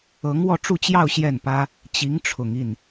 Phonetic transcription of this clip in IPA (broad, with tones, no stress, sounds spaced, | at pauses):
ɤ˧˥ ŋ w ɔ˥˧ ʈ͡ʂ u˥˧ t͡ɕ j ɑ˥˧ ʊ̯ ɕ j ɛ˥˩ n p ä˥ | t͡ɕ i˧˥ ŋ ʈ͡ʂʰ ʊ˨˩ ŋ i˥˩ n